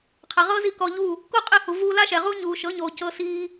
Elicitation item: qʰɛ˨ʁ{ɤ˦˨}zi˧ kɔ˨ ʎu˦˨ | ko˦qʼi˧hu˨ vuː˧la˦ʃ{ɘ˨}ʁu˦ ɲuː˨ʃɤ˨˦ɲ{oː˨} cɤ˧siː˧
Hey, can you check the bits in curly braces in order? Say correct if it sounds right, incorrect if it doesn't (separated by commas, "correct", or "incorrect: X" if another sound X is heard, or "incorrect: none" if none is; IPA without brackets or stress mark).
incorrect: ɤ˦, incorrect: ɛ˨, correct